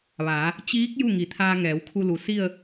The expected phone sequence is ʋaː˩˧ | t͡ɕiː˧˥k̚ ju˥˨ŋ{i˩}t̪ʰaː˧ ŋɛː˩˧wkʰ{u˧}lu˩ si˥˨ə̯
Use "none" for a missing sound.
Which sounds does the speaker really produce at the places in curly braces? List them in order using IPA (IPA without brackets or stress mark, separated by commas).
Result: i˩˧, u˧